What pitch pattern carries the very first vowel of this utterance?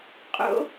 high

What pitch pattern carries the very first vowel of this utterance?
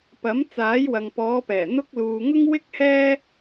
rising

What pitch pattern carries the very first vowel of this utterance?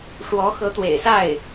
rising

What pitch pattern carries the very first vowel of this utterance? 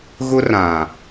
high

